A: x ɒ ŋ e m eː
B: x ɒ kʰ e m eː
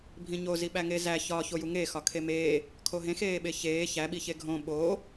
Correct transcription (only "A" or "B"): B